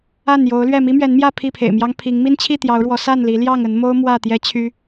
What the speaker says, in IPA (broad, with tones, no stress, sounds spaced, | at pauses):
a˥˨ n j o˨˦ ʊ̯ l ɥ ɛ˥˨ m i˦ m ɥ ɛ˨˦ n m j ä˥˨ pʰ i˥˨ pʰ ḛ˨˩ ɪ̯ m j ɑ˦ ŋ pʰ i˨˦ ŋ m i˦ n t͡ɕʰ i˥˨ t̪ j ɑ˨˦ ʊ̯ ɻ w ɔ˨˦ s a˥˨ n l i˨˦ l j ɑ˥˨ ŋ ə˨˦ n m o˦ ʊ̯ m w ä˥˨ t̪ j ɛ˦ t͡ɕʰ y˦